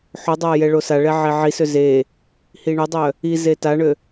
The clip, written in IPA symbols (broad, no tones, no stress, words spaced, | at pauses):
ħodˤaː jɛɭosaɭɛ ʕeʕisø ze | hiɳodˤœ | ize taɳø